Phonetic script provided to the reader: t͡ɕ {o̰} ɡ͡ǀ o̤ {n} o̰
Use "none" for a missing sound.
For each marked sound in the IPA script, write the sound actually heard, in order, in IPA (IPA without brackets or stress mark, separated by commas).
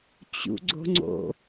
ṵ, ŋ͡ǀ